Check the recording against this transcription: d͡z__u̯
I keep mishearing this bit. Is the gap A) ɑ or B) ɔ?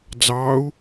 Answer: A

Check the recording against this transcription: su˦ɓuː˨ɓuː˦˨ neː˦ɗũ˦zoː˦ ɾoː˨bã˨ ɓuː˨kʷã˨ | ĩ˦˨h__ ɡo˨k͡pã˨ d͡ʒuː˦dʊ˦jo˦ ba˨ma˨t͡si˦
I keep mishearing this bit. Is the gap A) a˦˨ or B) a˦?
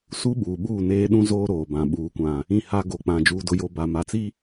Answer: B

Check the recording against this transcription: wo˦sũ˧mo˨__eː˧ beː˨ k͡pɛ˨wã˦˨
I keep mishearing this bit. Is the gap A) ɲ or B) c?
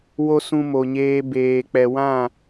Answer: A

